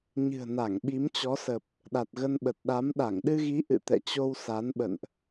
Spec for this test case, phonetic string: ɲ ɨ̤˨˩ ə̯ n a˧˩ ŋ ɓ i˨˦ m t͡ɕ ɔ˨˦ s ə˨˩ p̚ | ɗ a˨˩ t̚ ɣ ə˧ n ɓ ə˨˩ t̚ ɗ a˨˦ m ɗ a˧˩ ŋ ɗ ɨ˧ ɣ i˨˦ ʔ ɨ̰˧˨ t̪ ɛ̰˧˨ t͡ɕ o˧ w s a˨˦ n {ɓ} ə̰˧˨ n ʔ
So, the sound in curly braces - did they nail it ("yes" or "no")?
yes